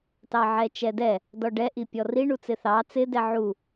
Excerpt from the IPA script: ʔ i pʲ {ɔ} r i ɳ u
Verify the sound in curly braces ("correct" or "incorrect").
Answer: correct